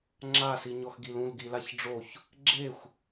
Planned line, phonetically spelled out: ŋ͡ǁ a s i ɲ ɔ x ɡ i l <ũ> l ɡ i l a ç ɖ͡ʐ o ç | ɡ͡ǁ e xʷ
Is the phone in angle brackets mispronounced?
no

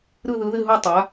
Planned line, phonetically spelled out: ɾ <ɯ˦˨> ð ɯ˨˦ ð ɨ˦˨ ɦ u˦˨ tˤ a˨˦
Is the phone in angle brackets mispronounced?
no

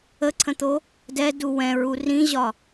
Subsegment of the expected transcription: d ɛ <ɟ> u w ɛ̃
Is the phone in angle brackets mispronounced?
yes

